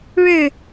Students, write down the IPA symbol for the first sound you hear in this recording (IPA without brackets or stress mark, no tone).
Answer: ɻ